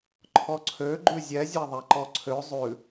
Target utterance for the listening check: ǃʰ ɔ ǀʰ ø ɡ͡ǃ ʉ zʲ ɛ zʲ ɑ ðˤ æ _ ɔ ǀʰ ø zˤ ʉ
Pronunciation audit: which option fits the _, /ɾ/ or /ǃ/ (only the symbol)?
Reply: ǃ